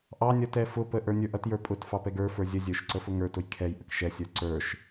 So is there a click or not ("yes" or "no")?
yes